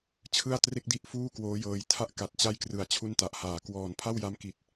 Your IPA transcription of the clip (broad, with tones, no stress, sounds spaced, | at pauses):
t͡ɕʰ ɯ˥˩ a̯ t r e˥˩ k̚ d i˥˩ ʔ f uː˥˩ k w oː˦˥ j ɤː˧ j tʰ a˥˩ ʔ k a˨˩ t̚ t͡ɕ a˥˩ j k r ɯ˨˩ a̯ t͡ɕʰ u˥˩ n t a˨˩ ʔ h aː˨˩ k w ɔː˨˩ n pʰ a˥˩ w j a˦˥ m k i˨˩ t̚